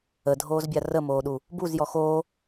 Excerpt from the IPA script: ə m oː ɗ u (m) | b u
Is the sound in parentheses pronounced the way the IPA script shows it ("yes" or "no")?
no